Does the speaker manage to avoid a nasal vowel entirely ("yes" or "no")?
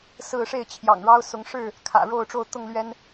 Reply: yes